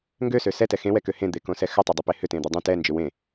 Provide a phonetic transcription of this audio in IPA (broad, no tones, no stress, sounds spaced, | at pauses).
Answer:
ŋ ɡ ø s ø s ɛ t ɛ x ẽ w ɛ k ø h ẽ d̪ e k õ s ɛ x ʏ tˤ e dˤ ø p e h ʏ t ẽ d̪ ɛ dˤ ẽ t ɛ n d͡ʒ ʏ w ẽ